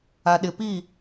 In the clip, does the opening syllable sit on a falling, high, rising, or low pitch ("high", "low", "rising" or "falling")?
low